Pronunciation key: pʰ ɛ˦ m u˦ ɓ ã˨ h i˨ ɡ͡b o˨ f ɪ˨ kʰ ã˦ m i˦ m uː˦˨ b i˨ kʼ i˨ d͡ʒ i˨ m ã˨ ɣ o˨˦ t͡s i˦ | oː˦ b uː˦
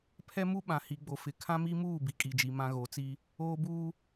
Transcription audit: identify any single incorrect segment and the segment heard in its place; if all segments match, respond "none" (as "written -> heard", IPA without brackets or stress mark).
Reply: none